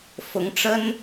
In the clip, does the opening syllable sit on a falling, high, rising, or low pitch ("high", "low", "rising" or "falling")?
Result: rising